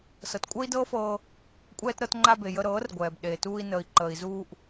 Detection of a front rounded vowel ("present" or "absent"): absent